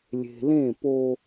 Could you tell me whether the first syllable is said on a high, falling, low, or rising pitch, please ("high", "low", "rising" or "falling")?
low